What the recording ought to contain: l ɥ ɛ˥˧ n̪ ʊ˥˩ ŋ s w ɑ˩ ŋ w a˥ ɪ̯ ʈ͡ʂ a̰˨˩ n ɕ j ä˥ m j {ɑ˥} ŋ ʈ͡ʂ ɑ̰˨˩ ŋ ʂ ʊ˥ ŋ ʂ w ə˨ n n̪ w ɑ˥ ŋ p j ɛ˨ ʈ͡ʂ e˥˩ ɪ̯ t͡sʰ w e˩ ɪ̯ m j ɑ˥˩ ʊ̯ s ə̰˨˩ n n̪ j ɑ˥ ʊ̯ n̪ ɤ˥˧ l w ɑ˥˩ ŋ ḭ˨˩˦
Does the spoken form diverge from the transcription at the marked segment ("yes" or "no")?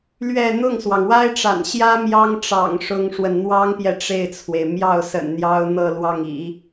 no